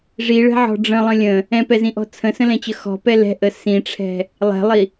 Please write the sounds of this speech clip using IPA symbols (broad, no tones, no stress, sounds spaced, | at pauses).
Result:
ʐ i ɭ ɛ̤ ʕ ɔ̤ ɖ͡ʐ ə̃ lˠ ə̃ lʲ ə̃ | ɛ̃ p ɛ z ĩ ʔ ɔ̤ t͡sʰ ə̃ s ə̃ l ɛ̃ t͡ɕ ə x ɔ̤ p ɛ l ɛ̤ ʔ ə s ĩ ʈ͡ʂʰ ɛ̤ | lˠ ɛ̤ lˠ i